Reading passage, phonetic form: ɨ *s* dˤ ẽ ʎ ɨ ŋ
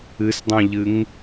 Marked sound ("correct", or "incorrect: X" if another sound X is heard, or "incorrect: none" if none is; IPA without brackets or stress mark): correct